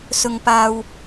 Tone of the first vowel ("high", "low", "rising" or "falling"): high